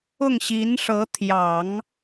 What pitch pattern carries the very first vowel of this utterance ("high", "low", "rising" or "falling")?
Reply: falling